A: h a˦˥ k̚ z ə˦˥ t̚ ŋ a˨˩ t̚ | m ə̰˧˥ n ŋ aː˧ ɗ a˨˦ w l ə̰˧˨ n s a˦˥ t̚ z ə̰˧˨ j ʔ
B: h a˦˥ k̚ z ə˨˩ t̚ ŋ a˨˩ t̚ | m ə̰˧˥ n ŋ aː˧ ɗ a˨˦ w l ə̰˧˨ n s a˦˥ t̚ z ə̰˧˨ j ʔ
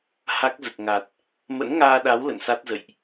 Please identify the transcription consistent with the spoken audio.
B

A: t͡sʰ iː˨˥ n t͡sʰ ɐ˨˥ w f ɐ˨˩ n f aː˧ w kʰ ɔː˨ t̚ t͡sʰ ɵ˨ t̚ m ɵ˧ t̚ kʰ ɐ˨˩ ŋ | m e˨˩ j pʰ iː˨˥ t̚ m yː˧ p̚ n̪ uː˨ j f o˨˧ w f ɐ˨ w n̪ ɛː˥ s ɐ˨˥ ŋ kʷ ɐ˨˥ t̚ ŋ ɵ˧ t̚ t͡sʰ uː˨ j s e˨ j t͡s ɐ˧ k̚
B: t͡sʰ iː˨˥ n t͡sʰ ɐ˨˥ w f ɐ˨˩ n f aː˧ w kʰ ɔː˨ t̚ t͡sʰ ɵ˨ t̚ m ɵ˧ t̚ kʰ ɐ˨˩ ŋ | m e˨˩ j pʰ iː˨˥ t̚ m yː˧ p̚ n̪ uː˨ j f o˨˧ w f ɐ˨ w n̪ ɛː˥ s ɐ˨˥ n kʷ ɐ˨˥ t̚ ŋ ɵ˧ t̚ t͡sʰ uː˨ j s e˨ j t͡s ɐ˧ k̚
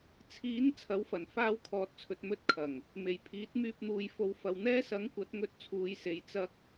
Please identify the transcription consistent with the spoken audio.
A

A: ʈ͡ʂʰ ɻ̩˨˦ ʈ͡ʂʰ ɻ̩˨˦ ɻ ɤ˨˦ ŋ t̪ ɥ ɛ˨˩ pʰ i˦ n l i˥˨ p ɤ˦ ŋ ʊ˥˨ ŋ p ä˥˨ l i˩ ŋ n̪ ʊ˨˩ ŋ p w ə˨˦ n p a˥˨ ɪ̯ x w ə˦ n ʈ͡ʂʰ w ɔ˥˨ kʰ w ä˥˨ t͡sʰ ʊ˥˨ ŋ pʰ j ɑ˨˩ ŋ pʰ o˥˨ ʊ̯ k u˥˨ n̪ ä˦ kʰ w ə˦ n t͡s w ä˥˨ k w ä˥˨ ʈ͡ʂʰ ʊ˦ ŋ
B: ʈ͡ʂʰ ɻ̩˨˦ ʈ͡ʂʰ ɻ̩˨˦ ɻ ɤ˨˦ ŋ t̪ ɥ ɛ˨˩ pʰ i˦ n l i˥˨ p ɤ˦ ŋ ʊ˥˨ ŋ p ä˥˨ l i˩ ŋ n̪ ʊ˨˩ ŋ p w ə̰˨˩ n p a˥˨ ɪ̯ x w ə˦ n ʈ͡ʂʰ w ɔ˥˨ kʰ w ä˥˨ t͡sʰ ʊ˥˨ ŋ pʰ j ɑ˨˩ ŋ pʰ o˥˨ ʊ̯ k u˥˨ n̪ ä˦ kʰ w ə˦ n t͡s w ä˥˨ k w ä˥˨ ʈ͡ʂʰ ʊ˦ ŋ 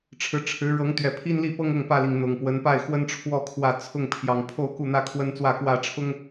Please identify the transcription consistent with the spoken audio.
A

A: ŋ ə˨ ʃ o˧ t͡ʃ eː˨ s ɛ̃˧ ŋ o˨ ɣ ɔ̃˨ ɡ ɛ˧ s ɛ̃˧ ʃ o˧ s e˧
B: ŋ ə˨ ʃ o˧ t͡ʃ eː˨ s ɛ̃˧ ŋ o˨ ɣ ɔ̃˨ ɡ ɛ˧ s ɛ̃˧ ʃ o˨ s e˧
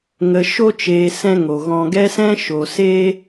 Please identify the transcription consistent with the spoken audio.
B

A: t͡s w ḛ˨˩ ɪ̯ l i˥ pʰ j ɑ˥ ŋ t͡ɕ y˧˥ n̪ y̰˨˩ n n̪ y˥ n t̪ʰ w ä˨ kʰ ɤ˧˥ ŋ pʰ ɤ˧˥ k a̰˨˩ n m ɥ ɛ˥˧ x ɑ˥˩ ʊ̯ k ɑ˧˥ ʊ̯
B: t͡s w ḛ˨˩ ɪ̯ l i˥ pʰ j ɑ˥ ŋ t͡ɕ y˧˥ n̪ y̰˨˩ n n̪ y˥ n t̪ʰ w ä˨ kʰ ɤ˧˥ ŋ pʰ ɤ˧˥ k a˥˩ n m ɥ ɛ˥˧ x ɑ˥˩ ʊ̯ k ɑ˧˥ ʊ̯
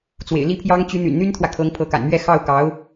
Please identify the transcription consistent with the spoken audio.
A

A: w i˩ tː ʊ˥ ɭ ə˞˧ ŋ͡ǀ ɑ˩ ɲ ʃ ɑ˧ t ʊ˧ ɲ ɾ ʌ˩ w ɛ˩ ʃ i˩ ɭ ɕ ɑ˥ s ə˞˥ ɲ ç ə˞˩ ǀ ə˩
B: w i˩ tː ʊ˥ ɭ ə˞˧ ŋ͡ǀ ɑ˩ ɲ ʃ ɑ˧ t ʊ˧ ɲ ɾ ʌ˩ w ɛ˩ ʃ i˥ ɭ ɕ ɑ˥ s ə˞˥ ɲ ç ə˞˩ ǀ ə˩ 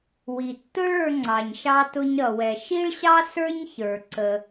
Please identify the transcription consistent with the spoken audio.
B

